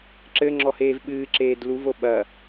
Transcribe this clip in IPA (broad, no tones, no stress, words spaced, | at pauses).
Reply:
ǁɘŋ͡ǁɔheːv ɓɨːǁeːd luvo ɓɐ